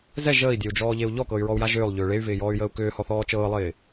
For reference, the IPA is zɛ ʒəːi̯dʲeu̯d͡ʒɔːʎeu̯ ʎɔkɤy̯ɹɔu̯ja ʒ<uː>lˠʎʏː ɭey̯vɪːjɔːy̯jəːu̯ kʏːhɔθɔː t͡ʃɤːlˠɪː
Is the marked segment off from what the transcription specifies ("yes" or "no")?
yes